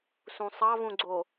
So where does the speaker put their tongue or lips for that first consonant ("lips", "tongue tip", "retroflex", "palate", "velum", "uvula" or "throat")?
tongue tip